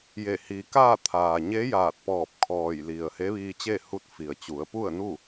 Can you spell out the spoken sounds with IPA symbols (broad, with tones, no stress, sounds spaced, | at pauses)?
j e˧˩ h i˩ k aː˥˨ t̪ʰ aː˩ ɲ e˧˥ j aː˧˩ t̚ p ɔː˧˩ p̚ kʰ ɔː˧˩ j l i˩ ə̯ h e˧˥ ʋ iː˧ t͡ɕ e˥˨ h u˧˥ t̚ f i˩ ə̯ t͡ɕ u˩˧ ə̯ p u˥˨ ə̯ n u˥˨